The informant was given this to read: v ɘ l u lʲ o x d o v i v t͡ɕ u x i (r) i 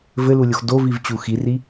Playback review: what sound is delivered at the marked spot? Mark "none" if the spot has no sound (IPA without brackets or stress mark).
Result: r